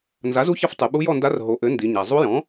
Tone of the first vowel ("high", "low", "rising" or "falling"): rising